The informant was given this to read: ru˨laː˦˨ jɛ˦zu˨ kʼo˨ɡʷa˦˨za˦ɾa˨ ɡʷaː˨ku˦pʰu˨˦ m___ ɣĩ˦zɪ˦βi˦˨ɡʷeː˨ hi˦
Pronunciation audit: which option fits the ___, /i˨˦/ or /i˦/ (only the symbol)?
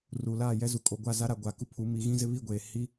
i˨˦